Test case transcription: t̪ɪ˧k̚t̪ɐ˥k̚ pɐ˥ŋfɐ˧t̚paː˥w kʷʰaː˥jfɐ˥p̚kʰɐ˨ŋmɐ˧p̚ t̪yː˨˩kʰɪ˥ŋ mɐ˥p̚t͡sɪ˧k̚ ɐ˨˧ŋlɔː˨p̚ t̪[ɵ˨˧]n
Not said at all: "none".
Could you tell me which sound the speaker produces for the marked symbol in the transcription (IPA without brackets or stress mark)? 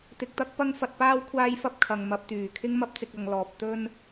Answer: ɵ˥